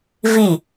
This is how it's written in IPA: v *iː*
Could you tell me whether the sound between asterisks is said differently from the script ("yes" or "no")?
yes